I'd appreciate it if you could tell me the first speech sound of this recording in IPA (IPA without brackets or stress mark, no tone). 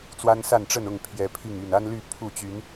t͡s